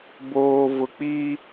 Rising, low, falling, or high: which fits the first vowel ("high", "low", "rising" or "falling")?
low